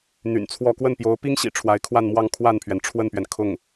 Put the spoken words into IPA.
n̪ y̰˨˩ n t͡sʰ w ɔ˥˧ k w ə˥˩ n p j o˧˥ ʊ̯ p i˥ ŋ ɕ ḭ˨˩ ʈ͡ʂʰ w a˧˥ ɪ̯ kʰ w a˥˧ n m w ɑ˥˧ ŋ kʰ w a˥˩ n pʰ ɥ ɛ˩ n ʈ͡ʂʰ w ə˥˩ n p ɥ ɛ˩ n kʰ ʊ˥˩ ŋ

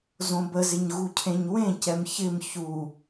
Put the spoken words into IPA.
z õ b ə z ɪ ɲ ɣ u cʰ ẽ ɲ w ẽ c ɛ m ç ɪ m ç u

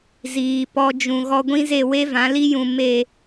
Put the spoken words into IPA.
z iː˨ p ɔ˧ d͡ʒ ũ˨ ɣ ɔ˧ ɡʷ ĩ˦ z e˦˨ w e˦ v ã˨˦ l i˦ j ũ˨ m e˦˨

